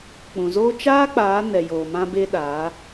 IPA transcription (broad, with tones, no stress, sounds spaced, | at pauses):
k͡p ũ˨ z oː˦ t͡ʃ aː˦ k͡p aː˨˦ n ɛ˨ j oː˨ m ã˧ b e˧ ɗ aː˨˦